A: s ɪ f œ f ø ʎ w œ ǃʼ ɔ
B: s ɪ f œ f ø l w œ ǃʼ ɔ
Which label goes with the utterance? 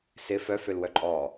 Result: B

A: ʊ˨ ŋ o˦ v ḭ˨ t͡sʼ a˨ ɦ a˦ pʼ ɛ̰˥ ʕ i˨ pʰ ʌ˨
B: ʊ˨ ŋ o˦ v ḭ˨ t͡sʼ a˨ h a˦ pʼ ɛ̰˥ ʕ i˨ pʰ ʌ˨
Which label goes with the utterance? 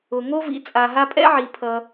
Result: A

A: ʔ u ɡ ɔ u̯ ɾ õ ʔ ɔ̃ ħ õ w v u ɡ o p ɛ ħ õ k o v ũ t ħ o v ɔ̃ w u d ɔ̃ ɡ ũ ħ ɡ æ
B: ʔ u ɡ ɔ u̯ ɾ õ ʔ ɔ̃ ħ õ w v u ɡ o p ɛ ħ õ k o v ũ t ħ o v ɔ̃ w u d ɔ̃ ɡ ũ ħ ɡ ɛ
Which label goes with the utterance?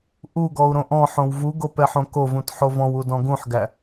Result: A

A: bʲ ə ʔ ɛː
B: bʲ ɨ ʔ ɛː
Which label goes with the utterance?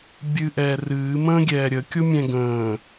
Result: B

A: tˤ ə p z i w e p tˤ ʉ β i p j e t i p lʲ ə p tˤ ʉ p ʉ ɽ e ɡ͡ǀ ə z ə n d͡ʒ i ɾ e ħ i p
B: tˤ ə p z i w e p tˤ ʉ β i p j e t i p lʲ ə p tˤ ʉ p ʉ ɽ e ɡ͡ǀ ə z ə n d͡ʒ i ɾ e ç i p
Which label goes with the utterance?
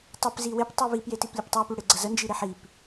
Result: A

